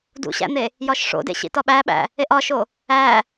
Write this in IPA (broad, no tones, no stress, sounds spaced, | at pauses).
d ṵ ɕ æ̰ n̪ e | j ɒ ʃ ʂ o̰ d ḛ ɕ ḭ t ɒ ɓ æ ɓ æ̰ | e ʔ ɒ ʃ o | æ